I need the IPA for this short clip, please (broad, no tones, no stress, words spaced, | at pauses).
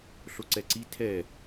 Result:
ɬoǀɛǀi tʰɛ